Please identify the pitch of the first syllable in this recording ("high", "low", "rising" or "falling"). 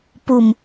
low